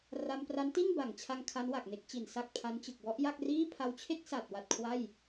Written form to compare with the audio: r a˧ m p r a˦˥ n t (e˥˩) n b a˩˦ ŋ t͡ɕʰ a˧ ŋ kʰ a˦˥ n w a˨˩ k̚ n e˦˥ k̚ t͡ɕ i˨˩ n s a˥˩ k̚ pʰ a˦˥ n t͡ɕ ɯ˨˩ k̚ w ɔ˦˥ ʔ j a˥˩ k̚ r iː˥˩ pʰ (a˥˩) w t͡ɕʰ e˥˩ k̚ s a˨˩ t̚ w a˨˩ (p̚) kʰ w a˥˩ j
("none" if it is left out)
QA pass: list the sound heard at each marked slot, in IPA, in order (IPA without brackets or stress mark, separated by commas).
i˥˩, a˧, t̚